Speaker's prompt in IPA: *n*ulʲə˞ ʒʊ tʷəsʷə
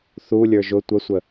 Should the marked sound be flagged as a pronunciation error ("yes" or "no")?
yes